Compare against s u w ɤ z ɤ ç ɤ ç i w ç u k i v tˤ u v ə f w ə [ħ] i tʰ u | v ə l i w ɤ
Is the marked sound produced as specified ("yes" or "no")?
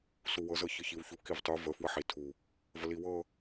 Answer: yes